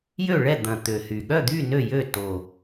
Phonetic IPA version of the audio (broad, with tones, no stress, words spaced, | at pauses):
jø˥˨ɭɛ˥˨d̪ɐ̃˨˩ t̪ø˨˩hy˨˩ ɠœ˥˨d̪y˥˨ nø˥˨jø˥˨ to˨˩